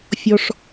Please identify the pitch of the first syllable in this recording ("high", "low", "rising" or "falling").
high